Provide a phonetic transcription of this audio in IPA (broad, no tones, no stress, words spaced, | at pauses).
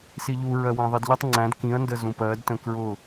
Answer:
siʎu ɹɜwæ̃ðˤidʎʌtˤ ŋ͡ǀæ̃d kĩɐ̯ ndəzũpɜd tə̃kɹʊ